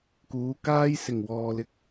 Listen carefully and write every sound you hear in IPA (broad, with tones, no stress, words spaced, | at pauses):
kuː˨˧kaː˥j sɪ˨˩ŋwɔː˨lɪ˨k̚